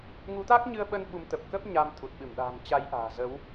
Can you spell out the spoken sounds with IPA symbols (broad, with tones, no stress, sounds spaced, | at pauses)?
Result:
ŋ u˨˦ t̪ a˦˥ k̚ ɲ ɨ˧ ə̯ ɓ ə˧ n ɓ u˨˦ m t̪ ə˨˩ p̚ k ə˦˥ p̚ ɲ a˧ m t̪ʰ u˨˩ t̚ ɓ ɨ˧˩ m ɗ a̤ː˨˩ m t͡ɕ a˨˦ j ʔ a̤ː˨˩ z ə˨˦ w